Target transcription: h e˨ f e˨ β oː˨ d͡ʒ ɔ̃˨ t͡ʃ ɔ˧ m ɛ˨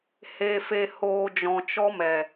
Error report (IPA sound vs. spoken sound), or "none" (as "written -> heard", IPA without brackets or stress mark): β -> h